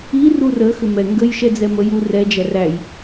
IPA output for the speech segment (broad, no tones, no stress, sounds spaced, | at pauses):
i r u r ə x ʏ m ɛ ŋ ɡ ə j ʃ ɛ d͡z ɛ m ə j u r ɛ d͡ʒ æ r æ j